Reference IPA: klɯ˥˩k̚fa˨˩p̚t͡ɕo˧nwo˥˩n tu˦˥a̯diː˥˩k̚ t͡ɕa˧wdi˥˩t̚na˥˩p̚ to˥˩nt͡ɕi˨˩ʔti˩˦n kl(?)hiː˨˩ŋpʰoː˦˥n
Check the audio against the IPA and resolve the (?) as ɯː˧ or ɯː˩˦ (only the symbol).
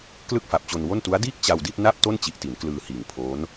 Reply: ɯː˧